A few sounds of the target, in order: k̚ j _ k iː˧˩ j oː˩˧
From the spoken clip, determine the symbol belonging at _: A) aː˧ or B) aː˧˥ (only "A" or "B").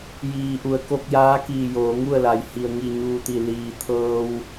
B